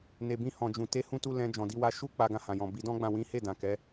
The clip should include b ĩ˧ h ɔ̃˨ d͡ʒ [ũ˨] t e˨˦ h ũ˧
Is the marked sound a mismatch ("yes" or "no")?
no